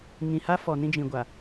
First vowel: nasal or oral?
nasal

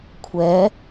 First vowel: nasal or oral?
oral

